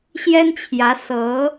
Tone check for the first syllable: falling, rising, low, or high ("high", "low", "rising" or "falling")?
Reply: high